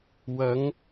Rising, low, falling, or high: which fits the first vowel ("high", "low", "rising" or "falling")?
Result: rising